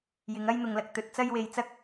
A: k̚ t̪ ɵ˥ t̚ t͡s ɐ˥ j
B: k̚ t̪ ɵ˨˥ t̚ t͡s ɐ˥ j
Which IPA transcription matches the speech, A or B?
B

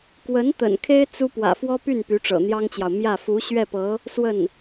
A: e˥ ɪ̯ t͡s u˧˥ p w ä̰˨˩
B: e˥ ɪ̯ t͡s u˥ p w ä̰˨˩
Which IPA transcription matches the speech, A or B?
B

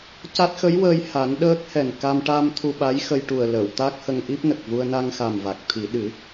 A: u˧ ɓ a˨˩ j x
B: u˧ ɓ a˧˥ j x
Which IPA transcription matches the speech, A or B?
B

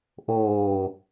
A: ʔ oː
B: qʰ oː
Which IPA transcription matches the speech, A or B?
A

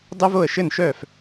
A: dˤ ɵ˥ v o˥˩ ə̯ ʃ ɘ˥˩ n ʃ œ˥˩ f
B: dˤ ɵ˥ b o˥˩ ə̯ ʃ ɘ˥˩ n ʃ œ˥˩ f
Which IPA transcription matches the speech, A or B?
A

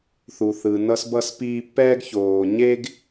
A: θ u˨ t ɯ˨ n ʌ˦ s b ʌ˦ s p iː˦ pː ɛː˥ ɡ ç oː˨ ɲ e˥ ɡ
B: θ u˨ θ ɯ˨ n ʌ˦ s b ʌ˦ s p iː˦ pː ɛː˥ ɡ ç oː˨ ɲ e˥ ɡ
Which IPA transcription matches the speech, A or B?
B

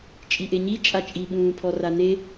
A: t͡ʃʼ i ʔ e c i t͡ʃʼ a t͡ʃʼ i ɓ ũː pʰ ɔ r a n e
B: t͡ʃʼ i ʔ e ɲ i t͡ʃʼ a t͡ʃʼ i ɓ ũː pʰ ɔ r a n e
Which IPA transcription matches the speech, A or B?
B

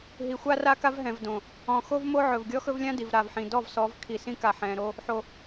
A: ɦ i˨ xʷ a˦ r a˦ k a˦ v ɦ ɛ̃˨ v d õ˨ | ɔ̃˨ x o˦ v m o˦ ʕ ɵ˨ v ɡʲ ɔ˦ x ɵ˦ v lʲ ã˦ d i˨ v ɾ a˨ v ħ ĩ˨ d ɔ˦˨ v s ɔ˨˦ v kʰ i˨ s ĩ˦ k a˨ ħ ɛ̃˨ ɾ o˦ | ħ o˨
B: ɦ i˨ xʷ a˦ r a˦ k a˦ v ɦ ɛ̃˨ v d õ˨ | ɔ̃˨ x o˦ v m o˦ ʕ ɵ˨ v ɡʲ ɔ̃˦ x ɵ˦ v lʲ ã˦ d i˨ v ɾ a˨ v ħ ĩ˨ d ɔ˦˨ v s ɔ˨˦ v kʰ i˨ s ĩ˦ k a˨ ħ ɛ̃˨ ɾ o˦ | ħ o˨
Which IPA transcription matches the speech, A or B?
A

